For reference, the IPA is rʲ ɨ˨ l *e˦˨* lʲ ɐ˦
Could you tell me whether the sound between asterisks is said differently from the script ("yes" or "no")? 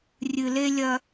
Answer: yes